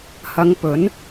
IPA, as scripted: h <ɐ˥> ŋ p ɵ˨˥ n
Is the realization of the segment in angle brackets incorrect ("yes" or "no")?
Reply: yes